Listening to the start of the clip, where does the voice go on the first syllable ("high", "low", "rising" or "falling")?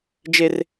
high